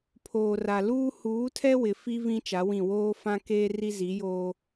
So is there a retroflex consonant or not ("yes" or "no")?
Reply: no